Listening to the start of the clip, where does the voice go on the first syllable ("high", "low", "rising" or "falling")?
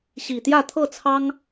low